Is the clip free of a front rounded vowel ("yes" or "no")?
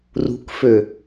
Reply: no